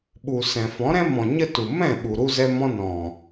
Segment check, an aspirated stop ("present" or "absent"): absent